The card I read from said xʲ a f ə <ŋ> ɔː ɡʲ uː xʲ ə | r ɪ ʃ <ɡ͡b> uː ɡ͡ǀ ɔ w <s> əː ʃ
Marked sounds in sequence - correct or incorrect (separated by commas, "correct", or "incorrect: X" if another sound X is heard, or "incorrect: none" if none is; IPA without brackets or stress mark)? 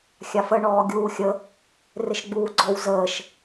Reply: incorrect: ɳ, correct, incorrect: z